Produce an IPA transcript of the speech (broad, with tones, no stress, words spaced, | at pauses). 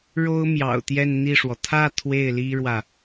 ɻo˥ʊ̯ mjɑ̰˨˩ʊ̯t̪jɛ˥˧nn̪i˥˩ʂwɔ˩ t̪ʰä˥˧ t̪ʰwe˥˩ɪ̯li˥ɻwä˨